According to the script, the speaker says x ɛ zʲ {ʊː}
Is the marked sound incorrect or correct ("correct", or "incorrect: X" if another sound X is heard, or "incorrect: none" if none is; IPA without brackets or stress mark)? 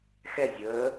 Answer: incorrect: əː